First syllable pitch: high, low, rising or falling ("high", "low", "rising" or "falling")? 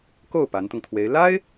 falling